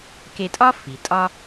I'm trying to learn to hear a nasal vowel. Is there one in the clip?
no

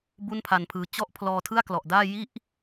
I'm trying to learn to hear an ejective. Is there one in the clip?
no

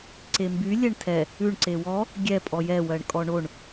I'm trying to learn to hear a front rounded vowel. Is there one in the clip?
yes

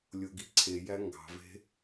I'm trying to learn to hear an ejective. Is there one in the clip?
no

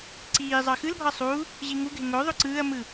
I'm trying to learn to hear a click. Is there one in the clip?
yes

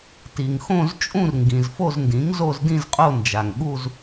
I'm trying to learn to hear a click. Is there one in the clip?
no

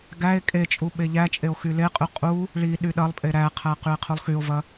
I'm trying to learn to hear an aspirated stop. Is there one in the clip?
yes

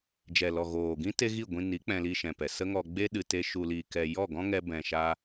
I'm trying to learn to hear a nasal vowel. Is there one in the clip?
yes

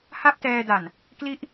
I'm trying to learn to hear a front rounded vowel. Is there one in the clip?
no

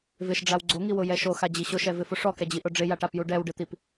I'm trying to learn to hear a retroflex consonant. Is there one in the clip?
yes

